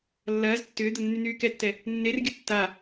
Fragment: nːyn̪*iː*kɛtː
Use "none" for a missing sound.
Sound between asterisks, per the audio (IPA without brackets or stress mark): yː